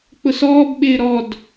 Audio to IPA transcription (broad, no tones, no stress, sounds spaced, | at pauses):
k͡p ʊ s ɔː b ɓ ɪː ɾ ɔ d